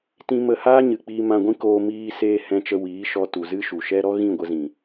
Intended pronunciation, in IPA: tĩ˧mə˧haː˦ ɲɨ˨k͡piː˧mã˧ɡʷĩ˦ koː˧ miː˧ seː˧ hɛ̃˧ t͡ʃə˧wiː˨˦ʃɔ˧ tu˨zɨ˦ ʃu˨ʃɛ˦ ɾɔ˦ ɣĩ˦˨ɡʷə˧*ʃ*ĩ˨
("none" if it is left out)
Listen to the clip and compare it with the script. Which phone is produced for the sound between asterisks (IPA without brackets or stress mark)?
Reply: z